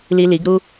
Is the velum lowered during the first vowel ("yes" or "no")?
no